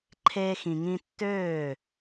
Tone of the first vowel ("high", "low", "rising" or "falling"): high